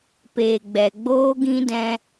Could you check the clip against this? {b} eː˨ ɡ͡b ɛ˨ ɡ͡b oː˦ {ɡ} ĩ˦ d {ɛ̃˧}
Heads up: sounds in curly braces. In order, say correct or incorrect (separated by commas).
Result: incorrect, correct, correct